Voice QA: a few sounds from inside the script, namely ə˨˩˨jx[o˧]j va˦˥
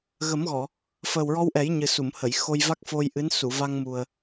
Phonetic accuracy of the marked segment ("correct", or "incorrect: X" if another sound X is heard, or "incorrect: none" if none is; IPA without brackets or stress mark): correct